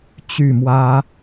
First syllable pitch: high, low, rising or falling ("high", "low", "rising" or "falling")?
falling